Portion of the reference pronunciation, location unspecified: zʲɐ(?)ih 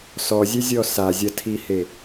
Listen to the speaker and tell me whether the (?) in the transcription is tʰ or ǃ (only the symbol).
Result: tʰ